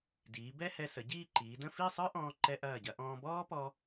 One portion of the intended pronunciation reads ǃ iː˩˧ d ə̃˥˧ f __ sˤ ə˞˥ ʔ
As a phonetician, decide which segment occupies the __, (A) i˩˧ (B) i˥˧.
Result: B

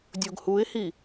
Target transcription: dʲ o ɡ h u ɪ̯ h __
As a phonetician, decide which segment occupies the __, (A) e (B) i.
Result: B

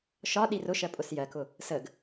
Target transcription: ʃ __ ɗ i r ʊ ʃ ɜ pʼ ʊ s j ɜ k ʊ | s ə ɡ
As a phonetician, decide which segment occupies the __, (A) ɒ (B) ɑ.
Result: A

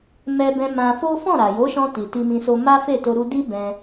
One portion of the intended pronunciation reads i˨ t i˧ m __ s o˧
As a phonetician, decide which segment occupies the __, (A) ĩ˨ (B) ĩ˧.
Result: B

